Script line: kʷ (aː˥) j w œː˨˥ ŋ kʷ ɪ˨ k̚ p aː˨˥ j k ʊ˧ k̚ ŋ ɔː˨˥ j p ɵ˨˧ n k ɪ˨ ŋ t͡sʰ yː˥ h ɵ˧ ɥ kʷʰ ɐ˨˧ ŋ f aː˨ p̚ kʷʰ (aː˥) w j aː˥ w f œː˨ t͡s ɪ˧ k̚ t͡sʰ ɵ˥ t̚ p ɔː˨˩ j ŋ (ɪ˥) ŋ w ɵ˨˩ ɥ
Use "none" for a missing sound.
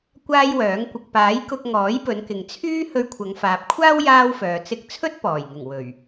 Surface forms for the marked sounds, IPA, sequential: aː˥, aː˥, ɪ˨˩

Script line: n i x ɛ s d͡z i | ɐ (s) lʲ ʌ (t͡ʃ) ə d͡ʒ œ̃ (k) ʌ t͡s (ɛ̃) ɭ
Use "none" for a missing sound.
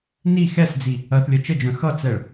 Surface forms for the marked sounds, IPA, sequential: θ, t͡ʃ, x, ɛ

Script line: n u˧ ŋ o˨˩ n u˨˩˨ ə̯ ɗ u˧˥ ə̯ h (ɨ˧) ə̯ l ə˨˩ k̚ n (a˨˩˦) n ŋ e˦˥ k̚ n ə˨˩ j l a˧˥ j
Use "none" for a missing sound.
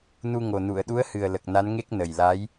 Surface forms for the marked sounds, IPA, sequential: ɨ˨˩, a˧˥

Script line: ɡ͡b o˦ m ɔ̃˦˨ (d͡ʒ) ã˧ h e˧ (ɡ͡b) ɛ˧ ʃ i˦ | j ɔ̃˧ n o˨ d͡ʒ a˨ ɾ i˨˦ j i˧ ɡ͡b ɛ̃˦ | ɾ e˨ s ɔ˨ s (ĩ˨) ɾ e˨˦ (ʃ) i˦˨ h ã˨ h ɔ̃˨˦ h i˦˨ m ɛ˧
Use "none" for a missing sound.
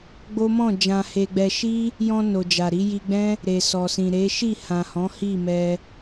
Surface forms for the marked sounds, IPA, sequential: d͡ʒ, ɡ͡b, ĩ˨, ʃ

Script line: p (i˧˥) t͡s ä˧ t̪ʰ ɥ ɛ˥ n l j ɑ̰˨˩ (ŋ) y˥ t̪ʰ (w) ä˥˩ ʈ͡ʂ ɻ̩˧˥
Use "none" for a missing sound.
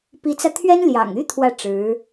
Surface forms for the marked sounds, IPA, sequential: i˧˥, ŋ, w

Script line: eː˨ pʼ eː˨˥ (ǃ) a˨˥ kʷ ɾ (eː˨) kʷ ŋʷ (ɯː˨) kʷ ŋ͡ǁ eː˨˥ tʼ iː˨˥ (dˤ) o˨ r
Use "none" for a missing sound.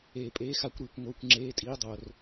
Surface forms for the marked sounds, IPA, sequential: x, iː˨, ɯː˨, dˤ

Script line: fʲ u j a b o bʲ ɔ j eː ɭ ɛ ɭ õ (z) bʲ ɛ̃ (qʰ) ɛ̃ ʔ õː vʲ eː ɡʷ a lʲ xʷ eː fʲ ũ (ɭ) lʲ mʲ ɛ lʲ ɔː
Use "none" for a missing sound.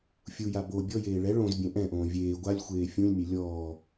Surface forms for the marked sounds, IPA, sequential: z, ʔ, none

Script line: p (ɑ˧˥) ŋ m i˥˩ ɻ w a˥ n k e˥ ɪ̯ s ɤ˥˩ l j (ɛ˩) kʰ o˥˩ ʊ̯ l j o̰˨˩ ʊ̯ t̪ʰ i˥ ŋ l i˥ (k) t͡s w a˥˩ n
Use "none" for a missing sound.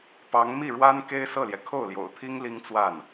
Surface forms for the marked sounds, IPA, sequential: ɑ˧˥, ɛ˩, ŋ

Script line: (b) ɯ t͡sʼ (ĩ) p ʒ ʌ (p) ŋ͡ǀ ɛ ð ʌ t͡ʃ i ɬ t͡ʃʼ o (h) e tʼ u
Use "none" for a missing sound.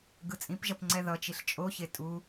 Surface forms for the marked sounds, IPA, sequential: ɡ, ĩ, p, ç

